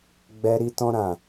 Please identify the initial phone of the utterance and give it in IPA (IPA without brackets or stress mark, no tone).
ɡ͡b